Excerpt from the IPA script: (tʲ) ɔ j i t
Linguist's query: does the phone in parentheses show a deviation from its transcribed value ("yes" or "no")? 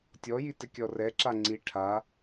no